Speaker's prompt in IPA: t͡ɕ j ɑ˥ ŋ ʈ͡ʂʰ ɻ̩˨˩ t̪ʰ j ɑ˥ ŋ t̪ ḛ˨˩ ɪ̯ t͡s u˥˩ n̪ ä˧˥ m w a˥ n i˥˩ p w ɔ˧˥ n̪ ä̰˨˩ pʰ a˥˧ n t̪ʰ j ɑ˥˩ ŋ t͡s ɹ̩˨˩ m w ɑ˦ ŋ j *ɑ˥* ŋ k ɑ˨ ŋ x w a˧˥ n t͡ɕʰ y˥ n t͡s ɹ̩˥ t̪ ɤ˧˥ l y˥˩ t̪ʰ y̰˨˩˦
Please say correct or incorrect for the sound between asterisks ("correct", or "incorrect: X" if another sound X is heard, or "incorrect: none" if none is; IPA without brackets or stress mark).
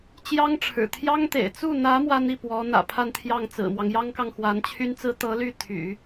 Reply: correct